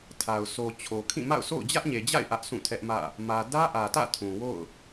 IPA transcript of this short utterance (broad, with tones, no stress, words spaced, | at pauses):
tʰa˨ʊ̯ sʰo˨ t͡ɕʰo˨kʰĩ˦˨ma̰˦˨ʊ̯ sʰo̰˦˨ʊ̯d͡ʑä˦ʔɲe˨d͡ʑa̰˦˨ɪ̯ ʔä˦ʔsʰũ˦˨tʰɛ˦ʔmä̰˦˨ | mä˨dä˦ʔä˨tä̰˦˨ tʰũ˨wo̰˦˨ʊ̯